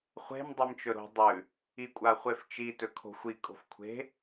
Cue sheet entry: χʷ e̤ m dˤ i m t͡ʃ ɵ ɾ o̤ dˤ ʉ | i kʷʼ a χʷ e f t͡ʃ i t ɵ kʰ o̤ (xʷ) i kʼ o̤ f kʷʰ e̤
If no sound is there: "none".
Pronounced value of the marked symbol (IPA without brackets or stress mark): xʷ